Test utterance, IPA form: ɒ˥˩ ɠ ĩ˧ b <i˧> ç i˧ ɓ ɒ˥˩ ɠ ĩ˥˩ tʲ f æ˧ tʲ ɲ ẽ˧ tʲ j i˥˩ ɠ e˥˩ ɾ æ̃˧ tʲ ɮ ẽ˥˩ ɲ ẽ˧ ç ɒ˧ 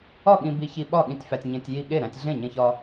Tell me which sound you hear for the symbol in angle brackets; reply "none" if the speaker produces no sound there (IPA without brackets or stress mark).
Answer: i˧